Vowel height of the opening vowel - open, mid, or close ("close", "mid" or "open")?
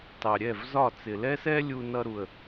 open